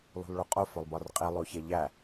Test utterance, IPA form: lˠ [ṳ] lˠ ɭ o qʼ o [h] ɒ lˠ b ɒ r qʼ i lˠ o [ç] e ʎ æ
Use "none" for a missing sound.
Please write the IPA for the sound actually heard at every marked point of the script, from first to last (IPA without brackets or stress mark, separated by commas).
ṳ, f, ç